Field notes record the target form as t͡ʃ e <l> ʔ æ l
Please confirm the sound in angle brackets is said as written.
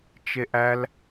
no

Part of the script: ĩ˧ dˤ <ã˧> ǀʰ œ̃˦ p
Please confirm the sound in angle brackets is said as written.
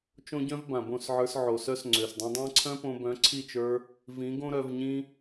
no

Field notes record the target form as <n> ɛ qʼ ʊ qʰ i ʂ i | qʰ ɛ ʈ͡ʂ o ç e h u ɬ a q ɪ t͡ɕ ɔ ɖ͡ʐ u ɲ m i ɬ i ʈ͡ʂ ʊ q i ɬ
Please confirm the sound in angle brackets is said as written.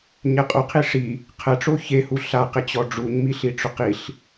no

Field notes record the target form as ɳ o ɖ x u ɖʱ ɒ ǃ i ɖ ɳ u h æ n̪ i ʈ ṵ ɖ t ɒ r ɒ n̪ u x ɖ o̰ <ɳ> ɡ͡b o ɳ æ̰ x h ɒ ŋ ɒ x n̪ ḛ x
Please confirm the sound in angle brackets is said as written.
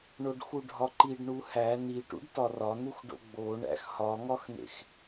no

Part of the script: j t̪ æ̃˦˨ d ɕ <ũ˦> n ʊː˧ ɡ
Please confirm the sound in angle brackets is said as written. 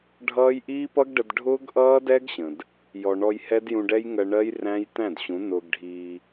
no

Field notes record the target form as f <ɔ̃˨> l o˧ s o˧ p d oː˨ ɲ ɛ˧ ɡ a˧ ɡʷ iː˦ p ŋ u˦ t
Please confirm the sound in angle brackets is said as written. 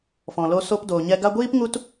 yes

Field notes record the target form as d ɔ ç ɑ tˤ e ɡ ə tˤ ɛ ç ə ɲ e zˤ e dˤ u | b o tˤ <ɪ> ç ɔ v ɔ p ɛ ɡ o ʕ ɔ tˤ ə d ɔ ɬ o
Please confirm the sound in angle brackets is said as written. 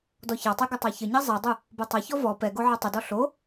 no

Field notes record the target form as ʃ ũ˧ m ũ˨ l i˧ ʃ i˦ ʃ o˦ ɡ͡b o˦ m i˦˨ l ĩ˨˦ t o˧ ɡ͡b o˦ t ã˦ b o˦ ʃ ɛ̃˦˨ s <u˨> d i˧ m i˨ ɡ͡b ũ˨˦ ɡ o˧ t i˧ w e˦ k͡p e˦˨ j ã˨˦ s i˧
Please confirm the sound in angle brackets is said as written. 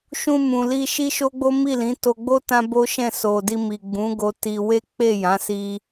no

